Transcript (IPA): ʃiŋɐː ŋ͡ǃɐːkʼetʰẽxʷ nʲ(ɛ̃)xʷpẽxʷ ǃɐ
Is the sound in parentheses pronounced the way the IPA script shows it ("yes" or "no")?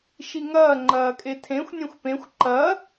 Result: no